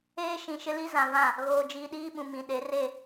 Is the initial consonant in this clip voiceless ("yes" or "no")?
yes